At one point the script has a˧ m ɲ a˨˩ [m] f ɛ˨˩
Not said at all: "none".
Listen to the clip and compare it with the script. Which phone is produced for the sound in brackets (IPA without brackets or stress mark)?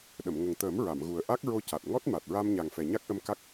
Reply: ŋ